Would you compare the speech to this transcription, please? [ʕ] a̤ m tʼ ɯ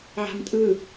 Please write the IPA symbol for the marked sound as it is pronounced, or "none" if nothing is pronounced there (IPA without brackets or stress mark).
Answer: ʕ